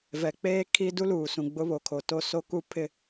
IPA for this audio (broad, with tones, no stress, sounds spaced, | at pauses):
v ɛ˨ k͡p eː˦ kʰ i˦ d u˦ l uː˨ s ũ˨ ɡ͡b ʊ˦ β o˨ kʰ o˨ t o˦ s o˦ k u˦ pʰ ɪ˦